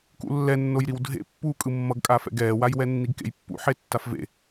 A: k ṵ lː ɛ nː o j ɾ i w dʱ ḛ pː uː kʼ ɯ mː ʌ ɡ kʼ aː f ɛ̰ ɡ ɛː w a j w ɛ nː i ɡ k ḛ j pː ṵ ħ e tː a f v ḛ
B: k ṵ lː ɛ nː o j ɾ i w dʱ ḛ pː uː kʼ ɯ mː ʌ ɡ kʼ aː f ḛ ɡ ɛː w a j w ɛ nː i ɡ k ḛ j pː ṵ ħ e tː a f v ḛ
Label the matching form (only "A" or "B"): A